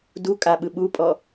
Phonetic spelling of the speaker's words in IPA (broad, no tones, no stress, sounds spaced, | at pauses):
d u kʼ a ɓ ɯ ɓ u pʼ ɔ